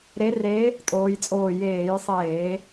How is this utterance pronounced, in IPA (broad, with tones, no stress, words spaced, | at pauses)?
ɾe˧˥re˧˥ | tʼoː˧˥jt͡sʼoː˦˨ jeː˧˩˧jsˤeː˧˩˧